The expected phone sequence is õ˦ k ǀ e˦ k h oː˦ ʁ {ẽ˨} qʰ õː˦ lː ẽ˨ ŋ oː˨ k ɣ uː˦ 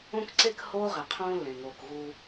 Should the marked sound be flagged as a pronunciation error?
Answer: yes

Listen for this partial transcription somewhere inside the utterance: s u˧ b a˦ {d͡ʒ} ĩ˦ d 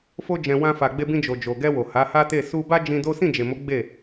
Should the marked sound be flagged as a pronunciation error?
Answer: no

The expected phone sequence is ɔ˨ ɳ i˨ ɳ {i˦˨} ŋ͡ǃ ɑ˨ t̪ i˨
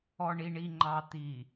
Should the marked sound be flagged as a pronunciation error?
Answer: yes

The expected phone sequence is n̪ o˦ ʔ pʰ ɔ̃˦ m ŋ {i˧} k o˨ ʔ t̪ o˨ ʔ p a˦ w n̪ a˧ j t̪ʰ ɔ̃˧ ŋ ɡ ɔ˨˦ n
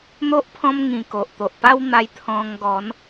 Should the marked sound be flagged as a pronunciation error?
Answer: yes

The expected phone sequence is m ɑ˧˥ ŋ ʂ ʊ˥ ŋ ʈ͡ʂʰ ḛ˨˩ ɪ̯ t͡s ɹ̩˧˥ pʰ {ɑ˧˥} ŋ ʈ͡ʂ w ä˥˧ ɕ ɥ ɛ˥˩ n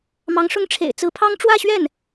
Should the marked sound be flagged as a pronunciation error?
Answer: yes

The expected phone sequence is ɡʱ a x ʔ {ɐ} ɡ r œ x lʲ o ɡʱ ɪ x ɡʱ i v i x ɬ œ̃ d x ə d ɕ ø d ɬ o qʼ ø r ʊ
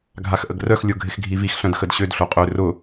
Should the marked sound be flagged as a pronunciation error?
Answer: yes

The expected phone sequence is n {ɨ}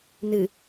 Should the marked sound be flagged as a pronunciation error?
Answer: no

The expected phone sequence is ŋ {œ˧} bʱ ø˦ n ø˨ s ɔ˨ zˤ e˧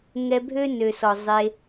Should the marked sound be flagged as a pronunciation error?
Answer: yes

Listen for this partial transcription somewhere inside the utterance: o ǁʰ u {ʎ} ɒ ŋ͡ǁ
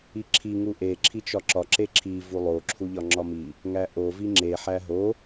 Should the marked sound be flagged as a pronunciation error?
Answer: no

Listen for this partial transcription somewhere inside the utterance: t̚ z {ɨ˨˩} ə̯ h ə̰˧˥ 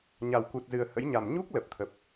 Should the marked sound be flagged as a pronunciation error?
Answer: no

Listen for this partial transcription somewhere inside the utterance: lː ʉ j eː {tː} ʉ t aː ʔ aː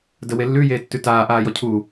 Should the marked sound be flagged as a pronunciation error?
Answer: no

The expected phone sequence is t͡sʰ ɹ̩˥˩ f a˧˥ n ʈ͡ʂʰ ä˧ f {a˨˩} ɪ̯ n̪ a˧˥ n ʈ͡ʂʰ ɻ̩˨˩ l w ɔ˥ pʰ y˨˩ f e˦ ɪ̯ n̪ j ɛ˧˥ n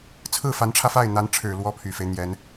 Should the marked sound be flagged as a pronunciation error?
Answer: yes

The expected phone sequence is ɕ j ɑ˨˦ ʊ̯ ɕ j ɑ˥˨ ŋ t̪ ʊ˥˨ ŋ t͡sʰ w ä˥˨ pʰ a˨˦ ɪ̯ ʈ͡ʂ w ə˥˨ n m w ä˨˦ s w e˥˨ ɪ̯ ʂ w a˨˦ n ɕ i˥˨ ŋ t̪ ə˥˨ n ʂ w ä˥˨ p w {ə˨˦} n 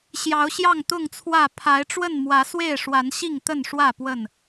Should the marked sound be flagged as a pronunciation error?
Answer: yes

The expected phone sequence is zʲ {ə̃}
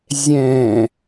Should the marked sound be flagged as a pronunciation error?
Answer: yes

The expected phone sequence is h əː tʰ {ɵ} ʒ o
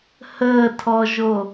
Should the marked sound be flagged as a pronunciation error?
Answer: yes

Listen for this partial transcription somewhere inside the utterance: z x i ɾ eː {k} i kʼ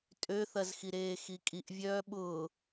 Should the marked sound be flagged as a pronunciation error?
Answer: yes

